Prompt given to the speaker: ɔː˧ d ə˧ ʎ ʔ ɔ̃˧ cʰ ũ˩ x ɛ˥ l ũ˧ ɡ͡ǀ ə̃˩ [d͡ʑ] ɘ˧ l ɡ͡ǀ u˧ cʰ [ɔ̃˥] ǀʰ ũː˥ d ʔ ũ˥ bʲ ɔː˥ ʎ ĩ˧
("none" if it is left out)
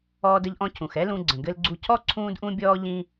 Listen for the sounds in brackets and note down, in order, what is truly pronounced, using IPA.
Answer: ɡ, ɔ˥

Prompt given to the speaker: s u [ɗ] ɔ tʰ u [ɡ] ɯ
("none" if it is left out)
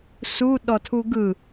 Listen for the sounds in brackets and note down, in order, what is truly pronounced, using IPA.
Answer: ɗ, ɡ

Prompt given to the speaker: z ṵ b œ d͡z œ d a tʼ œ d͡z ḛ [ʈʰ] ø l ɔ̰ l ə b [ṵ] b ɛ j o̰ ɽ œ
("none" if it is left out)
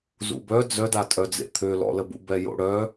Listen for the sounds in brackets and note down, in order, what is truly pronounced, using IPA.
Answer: t̪ʰ, ṵ

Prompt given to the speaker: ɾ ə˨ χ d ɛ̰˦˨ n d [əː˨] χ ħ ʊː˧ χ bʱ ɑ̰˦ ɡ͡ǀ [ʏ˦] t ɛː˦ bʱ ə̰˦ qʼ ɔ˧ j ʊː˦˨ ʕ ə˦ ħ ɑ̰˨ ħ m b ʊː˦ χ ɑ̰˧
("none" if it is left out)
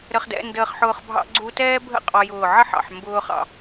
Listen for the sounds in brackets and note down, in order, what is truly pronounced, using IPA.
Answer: əː˧, u˦

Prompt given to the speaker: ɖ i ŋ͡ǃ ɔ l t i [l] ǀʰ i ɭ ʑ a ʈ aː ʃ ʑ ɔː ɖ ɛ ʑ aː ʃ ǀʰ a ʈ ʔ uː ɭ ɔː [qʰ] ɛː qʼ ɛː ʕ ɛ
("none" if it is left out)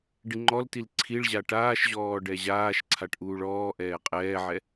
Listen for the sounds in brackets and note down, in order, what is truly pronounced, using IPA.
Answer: l, ʔ

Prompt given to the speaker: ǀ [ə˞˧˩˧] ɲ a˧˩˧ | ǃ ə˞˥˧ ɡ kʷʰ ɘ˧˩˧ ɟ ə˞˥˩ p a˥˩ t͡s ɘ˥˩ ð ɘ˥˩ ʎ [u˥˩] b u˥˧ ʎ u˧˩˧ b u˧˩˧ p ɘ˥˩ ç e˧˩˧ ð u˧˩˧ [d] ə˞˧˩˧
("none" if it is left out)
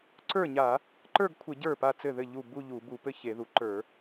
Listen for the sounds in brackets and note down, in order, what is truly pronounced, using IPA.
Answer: ə˞˥˩, u˥˩, ǃ

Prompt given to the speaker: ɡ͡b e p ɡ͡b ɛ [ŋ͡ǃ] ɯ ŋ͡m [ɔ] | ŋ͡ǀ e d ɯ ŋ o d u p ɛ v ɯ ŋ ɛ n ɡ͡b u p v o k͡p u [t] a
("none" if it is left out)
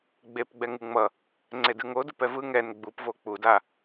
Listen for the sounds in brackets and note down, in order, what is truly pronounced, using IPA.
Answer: ŋ, ʌ, d

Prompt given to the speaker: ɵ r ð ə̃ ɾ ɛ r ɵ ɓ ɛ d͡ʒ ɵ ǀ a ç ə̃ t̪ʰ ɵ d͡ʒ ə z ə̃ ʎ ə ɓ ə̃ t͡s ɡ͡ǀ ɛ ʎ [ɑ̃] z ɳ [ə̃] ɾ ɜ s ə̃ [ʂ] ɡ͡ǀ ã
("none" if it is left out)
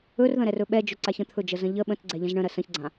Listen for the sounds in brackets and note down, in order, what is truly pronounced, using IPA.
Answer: ə̃, ə̃, ç

